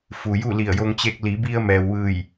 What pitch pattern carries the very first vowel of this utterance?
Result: low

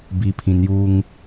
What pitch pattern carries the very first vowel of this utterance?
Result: low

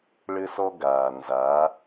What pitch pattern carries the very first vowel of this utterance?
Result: high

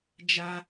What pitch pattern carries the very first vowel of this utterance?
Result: high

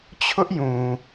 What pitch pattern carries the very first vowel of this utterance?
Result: high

